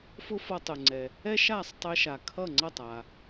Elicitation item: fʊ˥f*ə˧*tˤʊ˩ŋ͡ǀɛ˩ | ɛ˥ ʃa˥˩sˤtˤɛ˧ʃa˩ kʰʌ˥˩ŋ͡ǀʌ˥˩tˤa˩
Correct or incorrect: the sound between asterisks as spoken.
incorrect: ʌ˧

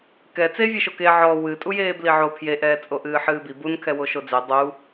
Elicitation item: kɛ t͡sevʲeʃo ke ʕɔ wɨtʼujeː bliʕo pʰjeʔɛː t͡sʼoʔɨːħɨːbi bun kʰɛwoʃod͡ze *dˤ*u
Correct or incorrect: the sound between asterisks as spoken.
correct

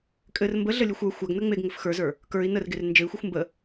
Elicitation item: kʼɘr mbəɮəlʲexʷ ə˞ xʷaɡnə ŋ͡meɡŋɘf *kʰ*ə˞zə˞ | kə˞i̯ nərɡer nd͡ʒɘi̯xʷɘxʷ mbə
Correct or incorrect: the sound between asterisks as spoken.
incorrect: x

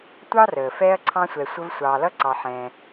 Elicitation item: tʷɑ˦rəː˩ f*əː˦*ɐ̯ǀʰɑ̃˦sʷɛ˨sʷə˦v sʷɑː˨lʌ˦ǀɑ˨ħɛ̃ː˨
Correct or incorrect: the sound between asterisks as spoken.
incorrect: ɛː˦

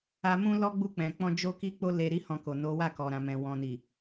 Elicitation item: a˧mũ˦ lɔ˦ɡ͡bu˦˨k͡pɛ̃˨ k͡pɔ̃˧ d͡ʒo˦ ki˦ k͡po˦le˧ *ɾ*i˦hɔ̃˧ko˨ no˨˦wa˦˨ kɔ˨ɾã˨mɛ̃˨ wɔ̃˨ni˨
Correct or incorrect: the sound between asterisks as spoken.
correct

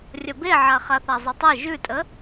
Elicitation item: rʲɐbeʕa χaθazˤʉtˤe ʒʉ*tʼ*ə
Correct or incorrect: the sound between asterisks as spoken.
correct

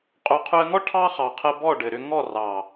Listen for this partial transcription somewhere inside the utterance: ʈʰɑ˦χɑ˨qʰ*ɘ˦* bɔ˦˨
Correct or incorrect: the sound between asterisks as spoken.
incorrect: ɘ˧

